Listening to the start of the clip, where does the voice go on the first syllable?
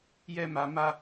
high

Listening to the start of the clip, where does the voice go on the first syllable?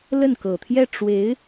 falling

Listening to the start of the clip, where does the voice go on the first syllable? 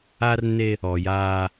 high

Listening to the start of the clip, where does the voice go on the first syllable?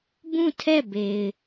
falling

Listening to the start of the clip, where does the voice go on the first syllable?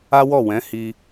high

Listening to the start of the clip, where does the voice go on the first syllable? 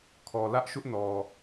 low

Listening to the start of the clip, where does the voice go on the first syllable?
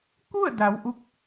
falling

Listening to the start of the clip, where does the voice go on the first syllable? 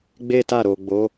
high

